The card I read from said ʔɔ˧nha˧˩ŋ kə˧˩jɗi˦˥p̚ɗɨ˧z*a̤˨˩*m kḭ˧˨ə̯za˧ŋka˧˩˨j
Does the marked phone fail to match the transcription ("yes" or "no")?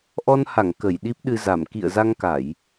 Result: yes